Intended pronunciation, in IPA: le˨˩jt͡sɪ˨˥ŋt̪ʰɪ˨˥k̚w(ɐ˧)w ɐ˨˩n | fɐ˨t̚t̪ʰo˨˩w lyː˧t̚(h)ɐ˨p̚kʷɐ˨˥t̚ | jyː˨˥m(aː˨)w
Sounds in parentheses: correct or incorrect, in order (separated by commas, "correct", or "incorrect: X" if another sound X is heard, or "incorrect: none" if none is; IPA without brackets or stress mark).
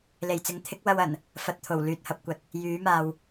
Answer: correct, correct, correct